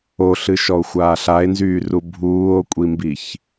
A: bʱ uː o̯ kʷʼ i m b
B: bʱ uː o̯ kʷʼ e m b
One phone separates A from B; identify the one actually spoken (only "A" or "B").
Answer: A